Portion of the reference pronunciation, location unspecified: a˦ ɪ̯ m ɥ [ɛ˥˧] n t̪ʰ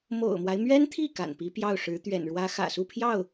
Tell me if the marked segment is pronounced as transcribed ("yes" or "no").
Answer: no